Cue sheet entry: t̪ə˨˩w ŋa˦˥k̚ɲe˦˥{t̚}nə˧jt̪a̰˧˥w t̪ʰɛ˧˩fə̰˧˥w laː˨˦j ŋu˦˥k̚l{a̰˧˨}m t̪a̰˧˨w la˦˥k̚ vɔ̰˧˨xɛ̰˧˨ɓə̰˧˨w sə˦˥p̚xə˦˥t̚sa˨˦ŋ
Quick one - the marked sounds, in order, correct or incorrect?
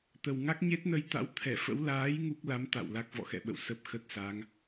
correct, incorrect: a˨˦

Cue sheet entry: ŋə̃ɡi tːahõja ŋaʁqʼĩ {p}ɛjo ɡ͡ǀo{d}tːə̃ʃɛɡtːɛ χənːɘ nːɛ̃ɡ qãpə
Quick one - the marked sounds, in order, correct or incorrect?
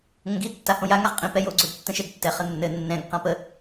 correct, correct

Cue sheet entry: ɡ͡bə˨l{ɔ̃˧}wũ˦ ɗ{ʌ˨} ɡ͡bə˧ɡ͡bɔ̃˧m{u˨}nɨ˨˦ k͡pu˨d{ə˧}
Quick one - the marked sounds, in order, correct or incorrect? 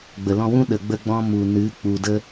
correct, incorrect: ə˨, correct, correct

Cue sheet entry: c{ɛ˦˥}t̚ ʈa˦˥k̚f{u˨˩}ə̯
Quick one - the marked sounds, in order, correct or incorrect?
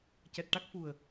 incorrect: ɛ˨˩, correct

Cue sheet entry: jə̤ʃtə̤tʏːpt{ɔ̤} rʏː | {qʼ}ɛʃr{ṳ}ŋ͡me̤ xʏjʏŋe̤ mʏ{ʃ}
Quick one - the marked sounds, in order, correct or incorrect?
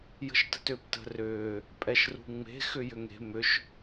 incorrect: ə̤, incorrect: pʼ, correct, correct

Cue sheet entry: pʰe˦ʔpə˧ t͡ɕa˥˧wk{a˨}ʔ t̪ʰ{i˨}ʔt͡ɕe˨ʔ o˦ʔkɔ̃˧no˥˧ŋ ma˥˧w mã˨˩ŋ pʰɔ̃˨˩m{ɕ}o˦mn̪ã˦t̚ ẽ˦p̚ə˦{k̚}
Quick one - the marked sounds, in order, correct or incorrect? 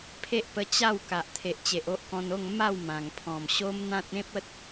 correct, incorrect: e˨, correct, incorrect: t̚

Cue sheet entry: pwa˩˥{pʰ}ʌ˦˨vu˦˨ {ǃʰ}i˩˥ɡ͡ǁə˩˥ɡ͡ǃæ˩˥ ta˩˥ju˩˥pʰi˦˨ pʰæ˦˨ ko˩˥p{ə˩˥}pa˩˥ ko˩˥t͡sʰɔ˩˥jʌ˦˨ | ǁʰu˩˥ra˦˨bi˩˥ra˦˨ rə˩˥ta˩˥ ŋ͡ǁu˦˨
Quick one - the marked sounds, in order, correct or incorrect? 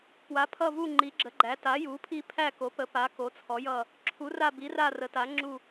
correct, incorrect: ŋ͡ǃ, correct

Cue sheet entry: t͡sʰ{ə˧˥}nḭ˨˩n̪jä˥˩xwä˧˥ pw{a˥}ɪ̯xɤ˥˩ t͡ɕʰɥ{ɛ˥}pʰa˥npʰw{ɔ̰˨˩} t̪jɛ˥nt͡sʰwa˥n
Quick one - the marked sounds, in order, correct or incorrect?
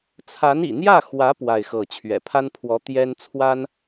incorrect: a˧˥, incorrect: a˥˧, incorrect: ɛ̰˨˩, incorrect: ɔ˧˥

